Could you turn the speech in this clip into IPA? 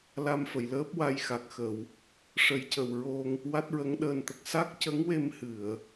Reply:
l a˧ m f ə˨˩˨ j l əː˦˥ p̚ w a˧ j x a˨˩ k̚ x ə˨˩˨ w | ʂ ə˨˩˦ j c ə˨˩ w ɹ o˧ ŋ | w a˦˥ t̚ ɹ ə˧˥ ŋ ɗ əː˧ n t̪ ə˨˩ k̚ s a˦˥ k̚ c ə˧˥ ŋ w e˧ m h ɨ˨˩˨ ə̯

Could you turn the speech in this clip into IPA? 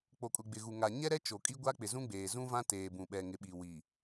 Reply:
k͡p o˨ kʼ ʊ˨ ɡ͡b ɪ˨ ɣ u˨ ŋ a˨ ɲ ɛ˦ ɾ ɛ˦ t͡ʃ o˨ kʼ i˦ ɡʷ a˦ k͡p ɪ˨ z ũ˦ ɡ͡b eː˨ z ũ˦ v ã˦ t eː˨ b ũ˨ ɓ ɛ˨ ŋ ɪ˨ ɓ i˨ w i˨

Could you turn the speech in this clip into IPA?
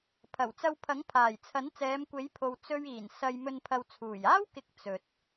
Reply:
pʰ ɐ˨˩ w t͡s ɐ˧ w pʰ ɐ˨˥ ŋ pʰ aː˨˩ j t͡sʰ ɐ˨˥ n t͡s ɛː˨˧ m kʷ e˨˥ j pʰ o˨ w t͡s ɵ˧ ɥ iː˨˩ n s ɐ˧ j m ɵ˧ n pʰ ɐ˨ w t͡sʰ uː˨˩ j aː˥ w k ɪ˧ k̚ t͡s ɵ˨ t̚

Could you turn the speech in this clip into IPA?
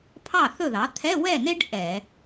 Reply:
pʰ ɑ˥˨ θ ɵ˥˨ ð ɑ˩˥ t̪ʰ ɛ˧˥˧ w ɛ˥˨ n e˥ ɖ ʔ ɛ˧˩˧

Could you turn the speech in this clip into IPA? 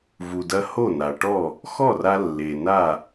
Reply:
v u˩ d ɐ˧ h o˥˩ n a˩ ʈ ɔ˥˩ | x ɔ˥˩ r a˧ lː e˩ n a˥˩

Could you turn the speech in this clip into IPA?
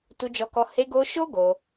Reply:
t u˧ d͡ʒ ɔ˧ k ɔ˧ h e˧ ɡ o˧ ʃ o˦ ɡ o˧

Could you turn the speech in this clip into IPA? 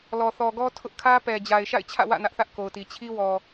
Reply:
l ɔ˨ θ ɔ˨ ɡ ɔ˦ tʰ ʊ˦ ʔ kʰ ä˦ p ɛ˨ d͡ʑ a˨ ɪ̯ ʃ a̰˦˨ ɪ̯ t͡ɕʰ ä̰˦˨ w ä̰˦˨ n ä˦ ʔ θ ä˦ ʔ k o˨ ʊ̯ t i˨ t͡ɕʰ i˦ w ɔ˨

